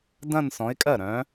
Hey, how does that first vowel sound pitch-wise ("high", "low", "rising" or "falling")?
falling